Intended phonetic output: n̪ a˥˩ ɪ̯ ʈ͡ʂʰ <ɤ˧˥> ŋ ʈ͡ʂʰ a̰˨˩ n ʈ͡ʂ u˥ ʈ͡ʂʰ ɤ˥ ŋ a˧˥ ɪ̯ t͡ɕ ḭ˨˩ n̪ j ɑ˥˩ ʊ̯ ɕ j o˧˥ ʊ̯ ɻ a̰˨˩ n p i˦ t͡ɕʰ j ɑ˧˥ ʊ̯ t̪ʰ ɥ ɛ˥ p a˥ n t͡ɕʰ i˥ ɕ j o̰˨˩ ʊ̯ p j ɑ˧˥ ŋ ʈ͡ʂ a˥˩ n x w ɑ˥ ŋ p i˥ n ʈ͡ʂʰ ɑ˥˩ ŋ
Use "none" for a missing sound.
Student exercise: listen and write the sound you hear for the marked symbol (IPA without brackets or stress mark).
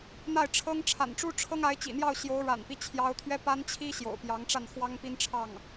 ɤ˥